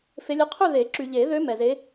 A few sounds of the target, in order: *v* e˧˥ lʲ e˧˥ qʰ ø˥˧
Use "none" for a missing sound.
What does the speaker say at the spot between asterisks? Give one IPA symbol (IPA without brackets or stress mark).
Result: f